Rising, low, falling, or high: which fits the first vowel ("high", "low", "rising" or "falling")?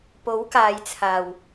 rising